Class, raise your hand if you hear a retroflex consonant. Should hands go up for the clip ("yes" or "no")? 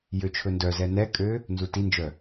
no